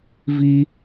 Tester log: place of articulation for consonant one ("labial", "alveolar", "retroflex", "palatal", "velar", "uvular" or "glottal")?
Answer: labial